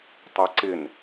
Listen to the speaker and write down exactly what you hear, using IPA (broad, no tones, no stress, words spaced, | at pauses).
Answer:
tˤaǀɪn